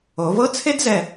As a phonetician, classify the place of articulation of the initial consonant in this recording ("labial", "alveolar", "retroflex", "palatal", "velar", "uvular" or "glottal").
labial